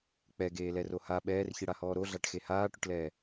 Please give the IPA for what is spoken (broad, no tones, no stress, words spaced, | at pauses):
k͡pɛɡeːlɛro ha ɓɛːrçiɽahɔː ɾoɮaʈxe haːʈʊʈlɛː